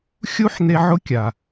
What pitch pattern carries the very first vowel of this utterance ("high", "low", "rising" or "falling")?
high